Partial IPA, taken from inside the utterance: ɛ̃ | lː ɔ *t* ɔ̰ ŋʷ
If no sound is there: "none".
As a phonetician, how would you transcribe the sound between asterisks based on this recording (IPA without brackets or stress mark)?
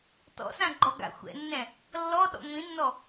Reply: ɗ